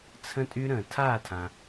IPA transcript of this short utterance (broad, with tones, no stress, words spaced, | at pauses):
t͡sʰə̃˦tʼy˦ ɾə̃ː˨tʰaː˥˨tʰã˨